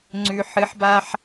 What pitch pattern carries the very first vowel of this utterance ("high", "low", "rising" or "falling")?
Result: low